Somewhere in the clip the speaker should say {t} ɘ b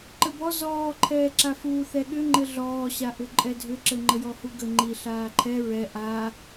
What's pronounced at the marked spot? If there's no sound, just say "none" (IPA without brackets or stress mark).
ǃ